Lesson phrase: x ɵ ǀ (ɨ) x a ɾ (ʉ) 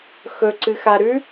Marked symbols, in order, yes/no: yes, yes

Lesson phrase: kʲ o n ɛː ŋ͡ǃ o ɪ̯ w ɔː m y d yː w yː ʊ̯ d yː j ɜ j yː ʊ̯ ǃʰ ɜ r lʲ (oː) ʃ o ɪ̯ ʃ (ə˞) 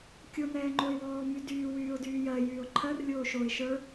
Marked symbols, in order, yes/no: yes, yes

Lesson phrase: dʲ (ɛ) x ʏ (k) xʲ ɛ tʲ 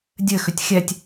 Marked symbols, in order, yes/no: no, no

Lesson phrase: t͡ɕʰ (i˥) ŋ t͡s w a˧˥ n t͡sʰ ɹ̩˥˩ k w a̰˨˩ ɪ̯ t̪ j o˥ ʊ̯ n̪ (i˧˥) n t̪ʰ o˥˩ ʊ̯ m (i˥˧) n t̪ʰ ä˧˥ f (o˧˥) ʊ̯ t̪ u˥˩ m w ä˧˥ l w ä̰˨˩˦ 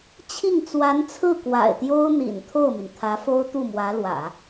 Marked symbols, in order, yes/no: no, no, no, no

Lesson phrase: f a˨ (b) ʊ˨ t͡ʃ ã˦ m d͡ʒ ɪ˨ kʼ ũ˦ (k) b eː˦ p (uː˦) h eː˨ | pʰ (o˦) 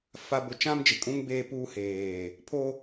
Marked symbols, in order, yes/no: yes, no, yes, yes

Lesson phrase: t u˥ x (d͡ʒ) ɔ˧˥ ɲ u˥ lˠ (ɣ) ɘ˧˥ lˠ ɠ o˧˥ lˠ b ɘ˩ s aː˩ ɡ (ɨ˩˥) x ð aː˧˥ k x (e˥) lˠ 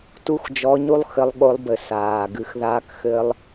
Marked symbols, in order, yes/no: yes, no, yes, no

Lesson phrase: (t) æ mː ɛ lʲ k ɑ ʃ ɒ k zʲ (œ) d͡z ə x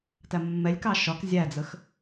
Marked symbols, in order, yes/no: yes, no

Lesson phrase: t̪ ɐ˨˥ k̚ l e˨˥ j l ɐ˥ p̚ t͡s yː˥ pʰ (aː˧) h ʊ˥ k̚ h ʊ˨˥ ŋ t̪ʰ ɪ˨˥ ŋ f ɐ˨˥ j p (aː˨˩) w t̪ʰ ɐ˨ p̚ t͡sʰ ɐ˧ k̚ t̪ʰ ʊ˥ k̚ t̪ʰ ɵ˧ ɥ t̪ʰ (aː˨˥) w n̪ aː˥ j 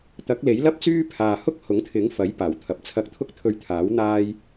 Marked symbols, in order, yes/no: yes, yes, yes

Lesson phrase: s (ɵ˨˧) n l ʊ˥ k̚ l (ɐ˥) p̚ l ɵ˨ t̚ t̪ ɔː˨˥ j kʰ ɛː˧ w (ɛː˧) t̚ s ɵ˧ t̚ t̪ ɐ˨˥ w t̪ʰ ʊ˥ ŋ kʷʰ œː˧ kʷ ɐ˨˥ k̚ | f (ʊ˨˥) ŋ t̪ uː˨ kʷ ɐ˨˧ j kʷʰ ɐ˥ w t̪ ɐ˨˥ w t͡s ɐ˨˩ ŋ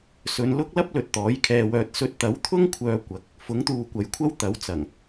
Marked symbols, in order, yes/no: yes, yes, no, yes

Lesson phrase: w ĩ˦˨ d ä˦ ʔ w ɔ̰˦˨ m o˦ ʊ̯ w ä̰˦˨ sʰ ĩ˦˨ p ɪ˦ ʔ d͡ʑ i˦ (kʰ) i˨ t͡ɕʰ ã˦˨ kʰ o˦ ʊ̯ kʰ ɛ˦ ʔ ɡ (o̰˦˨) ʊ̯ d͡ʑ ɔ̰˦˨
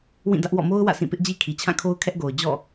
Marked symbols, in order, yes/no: yes, no

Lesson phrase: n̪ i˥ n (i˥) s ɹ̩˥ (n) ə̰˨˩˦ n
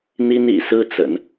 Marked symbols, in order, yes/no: no, no

